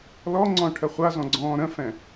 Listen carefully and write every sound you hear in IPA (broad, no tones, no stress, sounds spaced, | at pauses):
l ɔ ŋ͡ǀ ɔ̃ ʈʰ ə χʷ a z ɔ̃ ɡ͡ǀ ɔ̃ː ɾ ə̃ f ɛ̃